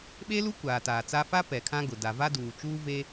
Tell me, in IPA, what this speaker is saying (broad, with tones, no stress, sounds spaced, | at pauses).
ɓ e˦ l u˦ kʷ aː˨ t aː˨ t͡s aː˦ f a˦ p ɛ˨ kʰ ã˦ ɡ ʊ˨ d a˨ v a˦ d uː˨ t͡ʃ uː˦ v e˦